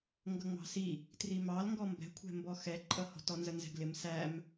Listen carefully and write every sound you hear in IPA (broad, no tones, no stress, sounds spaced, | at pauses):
ŋ ɡ ʌ ŋ͡m ɑ̤ s i | t r i m ɑ l ŋ ɡ ɔ m b ɛ̤ kʷʰ ɛ̤ m b ɔ x ɛ ǃʼ ʌ h ɔ̤ t ɔ n z ə n z ɛ̤ ɡ l ɪ m s æ m